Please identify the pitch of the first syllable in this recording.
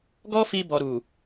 high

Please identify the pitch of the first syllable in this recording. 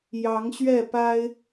rising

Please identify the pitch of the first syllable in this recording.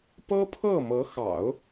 high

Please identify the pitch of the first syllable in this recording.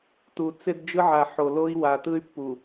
low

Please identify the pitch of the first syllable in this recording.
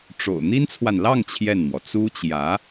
low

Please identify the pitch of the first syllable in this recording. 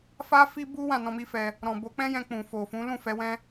high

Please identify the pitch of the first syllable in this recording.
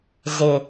low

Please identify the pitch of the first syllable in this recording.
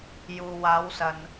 low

